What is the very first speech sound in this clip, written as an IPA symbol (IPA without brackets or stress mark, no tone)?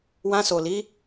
w